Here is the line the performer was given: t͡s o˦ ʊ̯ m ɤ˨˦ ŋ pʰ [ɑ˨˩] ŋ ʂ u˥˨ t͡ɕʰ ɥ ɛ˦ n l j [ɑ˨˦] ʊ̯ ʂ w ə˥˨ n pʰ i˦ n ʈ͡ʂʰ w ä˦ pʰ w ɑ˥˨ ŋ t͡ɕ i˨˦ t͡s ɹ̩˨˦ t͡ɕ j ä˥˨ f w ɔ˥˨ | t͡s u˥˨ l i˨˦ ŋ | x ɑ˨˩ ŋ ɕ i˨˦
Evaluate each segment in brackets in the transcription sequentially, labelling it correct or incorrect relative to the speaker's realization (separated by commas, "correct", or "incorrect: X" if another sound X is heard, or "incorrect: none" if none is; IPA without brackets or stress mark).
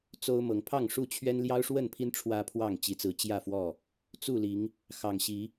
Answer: incorrect: ɑ˥˨, incorrect: ɑ˦